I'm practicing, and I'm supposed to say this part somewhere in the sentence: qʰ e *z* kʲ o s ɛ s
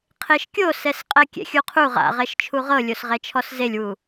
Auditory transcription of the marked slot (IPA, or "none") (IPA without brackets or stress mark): ʃ